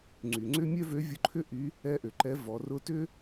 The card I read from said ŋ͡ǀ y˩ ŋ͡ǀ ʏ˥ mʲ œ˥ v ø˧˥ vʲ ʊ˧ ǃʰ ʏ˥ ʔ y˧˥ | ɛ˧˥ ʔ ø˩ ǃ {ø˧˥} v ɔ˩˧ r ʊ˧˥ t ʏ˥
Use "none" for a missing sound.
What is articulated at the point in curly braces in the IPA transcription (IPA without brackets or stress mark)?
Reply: ɛ˧˥